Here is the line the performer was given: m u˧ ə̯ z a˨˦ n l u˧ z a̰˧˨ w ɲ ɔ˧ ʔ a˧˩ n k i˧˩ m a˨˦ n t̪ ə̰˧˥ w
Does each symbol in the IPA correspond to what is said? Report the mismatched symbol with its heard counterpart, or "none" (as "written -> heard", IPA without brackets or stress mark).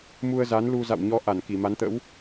none